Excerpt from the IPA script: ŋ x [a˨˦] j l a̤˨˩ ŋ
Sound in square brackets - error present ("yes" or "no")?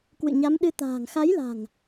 no